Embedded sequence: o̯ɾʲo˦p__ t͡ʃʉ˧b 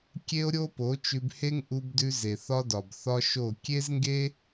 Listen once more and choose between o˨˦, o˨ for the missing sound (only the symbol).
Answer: o˨˦